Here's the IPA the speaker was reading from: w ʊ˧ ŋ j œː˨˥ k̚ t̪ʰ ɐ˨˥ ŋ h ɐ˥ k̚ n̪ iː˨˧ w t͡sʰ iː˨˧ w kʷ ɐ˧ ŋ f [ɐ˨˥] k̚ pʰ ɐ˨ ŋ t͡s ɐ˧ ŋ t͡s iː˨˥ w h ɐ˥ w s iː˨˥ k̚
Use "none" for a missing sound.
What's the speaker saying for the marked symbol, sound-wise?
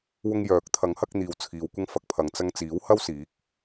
ɐ˨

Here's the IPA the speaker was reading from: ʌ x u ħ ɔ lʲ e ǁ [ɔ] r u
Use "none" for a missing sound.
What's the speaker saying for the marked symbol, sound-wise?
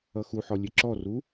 ɔ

